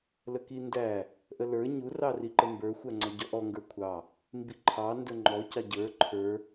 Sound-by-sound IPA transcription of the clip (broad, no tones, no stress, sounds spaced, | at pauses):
l ə k i n d æ | ʔ ə l ə˞ ɲ u r ɑ r i ǃ ə m b ə˞ xʷ æ ŋ͡ǀ ɔ ɟ ɔ ʔ ɔ ŋ ɡ ə˞ kʷʰ ɑ | m b i ǃʰ ɑ n d ə˞ ŋ͡ǃ ɔ c ɑ ɟ ə˞ ǃʰ ə˞